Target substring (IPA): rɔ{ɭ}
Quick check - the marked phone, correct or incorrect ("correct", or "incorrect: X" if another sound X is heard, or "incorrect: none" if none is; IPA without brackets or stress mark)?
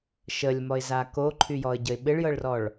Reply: correct